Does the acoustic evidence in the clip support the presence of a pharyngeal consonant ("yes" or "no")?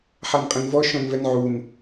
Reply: yes